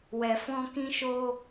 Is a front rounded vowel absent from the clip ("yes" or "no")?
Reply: yes